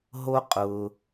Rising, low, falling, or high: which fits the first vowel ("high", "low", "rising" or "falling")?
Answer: high